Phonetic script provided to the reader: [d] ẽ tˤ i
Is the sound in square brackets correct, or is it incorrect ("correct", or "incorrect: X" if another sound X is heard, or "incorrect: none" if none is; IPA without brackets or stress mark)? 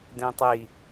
correct